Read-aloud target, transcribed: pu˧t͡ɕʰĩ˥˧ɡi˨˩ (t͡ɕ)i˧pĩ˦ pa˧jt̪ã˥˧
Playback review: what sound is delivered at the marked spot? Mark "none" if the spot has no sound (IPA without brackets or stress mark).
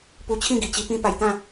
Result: t͡ɕ